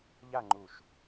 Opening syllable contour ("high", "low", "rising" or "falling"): falling